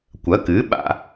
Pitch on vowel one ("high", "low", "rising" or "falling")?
rising